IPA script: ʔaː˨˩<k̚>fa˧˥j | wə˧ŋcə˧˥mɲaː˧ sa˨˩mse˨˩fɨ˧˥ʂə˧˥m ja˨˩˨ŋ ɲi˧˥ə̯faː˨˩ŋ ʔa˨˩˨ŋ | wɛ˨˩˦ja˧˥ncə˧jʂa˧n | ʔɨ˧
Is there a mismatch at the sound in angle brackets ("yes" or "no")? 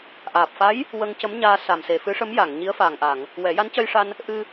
yes